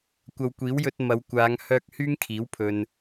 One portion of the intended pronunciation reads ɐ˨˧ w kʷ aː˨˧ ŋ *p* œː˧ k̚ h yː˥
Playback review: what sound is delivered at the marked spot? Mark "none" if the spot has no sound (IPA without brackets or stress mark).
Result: h